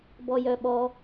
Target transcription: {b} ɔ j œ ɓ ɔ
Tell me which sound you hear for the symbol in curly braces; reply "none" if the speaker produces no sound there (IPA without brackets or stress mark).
b